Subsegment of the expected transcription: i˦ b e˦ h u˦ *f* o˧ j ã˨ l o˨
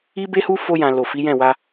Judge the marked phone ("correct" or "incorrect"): correct